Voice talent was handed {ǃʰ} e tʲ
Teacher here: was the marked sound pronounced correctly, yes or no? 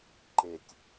no